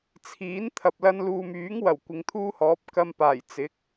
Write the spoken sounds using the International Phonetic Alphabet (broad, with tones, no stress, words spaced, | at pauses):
t͡sʰiː˨˥n t̪ʰɐ˨p̚lɐ˧nluː˨m yː˨˥ŋ wɐ˨˩wkʷɪ˨˧ŋt̪ʰuː˥hɔː˨˥p̚ kɐ˧mpaː˨˩j t͡sɪ˨˥k̚